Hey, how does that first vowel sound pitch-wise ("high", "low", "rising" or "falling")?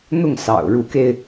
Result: falling